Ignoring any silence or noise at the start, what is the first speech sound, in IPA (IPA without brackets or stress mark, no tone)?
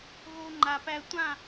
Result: ɣ